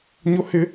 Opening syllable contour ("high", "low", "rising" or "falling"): high